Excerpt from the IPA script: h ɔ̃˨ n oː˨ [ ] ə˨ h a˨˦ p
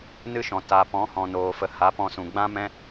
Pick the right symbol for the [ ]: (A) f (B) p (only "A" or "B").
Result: A